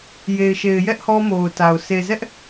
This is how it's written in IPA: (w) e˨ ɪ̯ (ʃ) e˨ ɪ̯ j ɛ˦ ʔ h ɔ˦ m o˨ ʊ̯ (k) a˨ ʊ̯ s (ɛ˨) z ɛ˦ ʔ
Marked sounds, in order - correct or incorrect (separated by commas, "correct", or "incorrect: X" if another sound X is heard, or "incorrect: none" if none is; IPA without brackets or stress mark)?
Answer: incorrect: j, correct, incorrect: t, incorrect: e˨